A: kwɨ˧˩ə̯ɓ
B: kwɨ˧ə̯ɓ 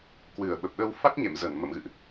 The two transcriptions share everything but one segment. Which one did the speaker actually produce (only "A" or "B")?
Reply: A